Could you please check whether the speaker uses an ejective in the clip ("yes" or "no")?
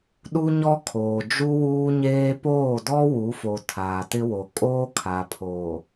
yes